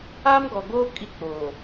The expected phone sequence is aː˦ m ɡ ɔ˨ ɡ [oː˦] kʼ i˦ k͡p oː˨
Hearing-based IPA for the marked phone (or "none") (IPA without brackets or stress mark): oː˦